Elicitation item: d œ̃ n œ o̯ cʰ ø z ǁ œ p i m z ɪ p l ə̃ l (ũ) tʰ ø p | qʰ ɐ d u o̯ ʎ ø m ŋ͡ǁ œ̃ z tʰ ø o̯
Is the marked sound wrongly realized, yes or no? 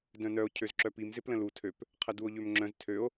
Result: yes